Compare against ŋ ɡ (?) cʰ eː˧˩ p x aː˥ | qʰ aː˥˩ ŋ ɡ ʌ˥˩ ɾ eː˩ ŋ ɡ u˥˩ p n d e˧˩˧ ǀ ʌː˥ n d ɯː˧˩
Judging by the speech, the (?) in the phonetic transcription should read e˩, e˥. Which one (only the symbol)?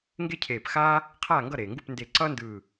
e˥